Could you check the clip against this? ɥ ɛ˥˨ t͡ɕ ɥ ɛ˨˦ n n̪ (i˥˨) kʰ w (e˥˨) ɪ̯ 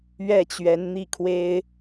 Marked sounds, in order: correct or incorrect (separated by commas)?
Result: correct, incorrect